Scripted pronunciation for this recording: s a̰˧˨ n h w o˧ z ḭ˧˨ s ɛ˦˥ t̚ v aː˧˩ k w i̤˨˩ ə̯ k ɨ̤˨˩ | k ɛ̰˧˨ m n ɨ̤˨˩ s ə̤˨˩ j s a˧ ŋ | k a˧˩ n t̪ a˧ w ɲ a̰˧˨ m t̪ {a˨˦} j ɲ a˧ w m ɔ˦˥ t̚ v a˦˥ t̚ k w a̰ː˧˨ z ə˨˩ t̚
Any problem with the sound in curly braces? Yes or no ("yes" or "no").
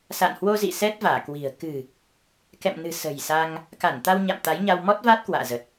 no